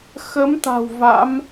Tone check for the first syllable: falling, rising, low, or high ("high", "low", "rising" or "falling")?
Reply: rising